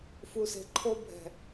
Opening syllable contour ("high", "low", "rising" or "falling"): low